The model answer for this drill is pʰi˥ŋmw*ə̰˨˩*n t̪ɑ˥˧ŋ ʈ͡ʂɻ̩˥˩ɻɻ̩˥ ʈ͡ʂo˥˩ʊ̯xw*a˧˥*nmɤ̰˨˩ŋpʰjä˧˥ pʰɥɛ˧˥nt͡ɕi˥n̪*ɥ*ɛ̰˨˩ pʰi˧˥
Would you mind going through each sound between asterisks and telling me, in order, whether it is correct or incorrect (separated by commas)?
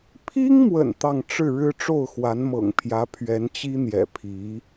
correct, correct, incorrect